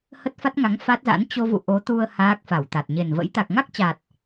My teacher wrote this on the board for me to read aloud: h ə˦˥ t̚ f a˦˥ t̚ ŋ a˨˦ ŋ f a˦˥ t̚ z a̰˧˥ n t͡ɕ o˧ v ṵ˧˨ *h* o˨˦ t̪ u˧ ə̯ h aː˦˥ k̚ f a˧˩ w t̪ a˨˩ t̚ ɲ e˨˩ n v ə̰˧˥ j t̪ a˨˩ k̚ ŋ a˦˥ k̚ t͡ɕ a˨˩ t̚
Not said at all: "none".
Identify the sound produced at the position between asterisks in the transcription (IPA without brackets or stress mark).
ʔ